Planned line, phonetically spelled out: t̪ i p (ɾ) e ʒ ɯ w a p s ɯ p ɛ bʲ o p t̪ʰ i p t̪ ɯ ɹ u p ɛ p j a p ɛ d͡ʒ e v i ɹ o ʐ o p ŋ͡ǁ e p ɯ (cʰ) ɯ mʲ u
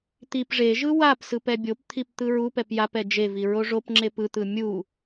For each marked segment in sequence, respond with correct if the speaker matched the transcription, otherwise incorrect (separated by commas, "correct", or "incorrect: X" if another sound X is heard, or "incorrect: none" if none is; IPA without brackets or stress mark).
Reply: incorrect: ʐ, incorrect: t̪